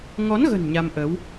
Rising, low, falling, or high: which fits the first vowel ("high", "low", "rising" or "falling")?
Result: rising